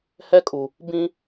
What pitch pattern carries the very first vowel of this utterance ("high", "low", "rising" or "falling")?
high